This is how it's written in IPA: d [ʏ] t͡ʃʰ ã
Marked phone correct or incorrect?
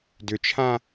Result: correct